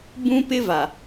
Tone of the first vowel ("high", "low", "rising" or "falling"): high